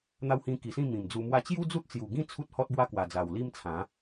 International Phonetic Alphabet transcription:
n̪ a˧ w h ĩ˧ k i˨˩ s ĩ˥˧ m ĩ˨˩ m d͡z u˧ m w a˦ t͡ɕ j u˦ d͡z u˦ t̚ t͡s j u˨˩ ɡ ĩ˥˧ t͡sʰ u˦ t̚ h ɔ˦ t̚ b w a˦ k w a˨˩ d͡z a˨˩ w l i˦ m t͡sʰ ã˨˦

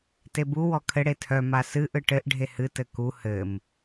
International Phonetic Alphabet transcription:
t e b u w ɔ kʰ ɘ ɽ e tʰ œ m a s ɨ ʔ ɯ ʈ ɘ ʔ ɖʱ e h ɨ t ɘ k u h ɘ m

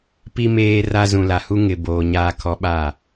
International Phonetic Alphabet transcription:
p i˨ m eː˨ r a˨ z ũ˨ l a˨ h u˦ ŋ ɪ˨ b oː˨ ɲ aː˨ kʰ ɔ˨˦ ɓ a˦˨

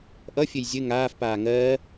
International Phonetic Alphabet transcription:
ʔ ʌ fʲ ɘ j zʲ ɘ ŋ aː f p aː ŋ ɜː

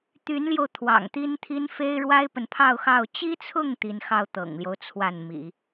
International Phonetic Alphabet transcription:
t̪ y˧˥ n l j o˧ ʊ̯ t̪ʰ w ɑ̰˨˩ ŋ t̪ i˥ n t̪ʰ i˥ n f e˥ ɪ̯ ɻ w a˥ ɪ̯ p ə˨ n pʰ ɑ˥˧ ʊ̯ x ɑ˥˩ ʊ̯ t͡ɕ i˥ t͡sʰ ʊ˥˩ ŋ t̪ i˧˥ n x ɑ˥˩ ʊ̯ t̪ ɤ̰˨˩ ŋ l j o˦ ʊ̯ t͡sʰ w a˥˩ n m ḭ˨˩˦

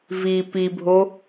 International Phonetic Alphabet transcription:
v i p i bʱ o

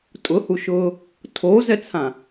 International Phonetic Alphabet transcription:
tʼ ʊ h u ʃ ʊː | tʰ o z ɛ t͡sʰ ã

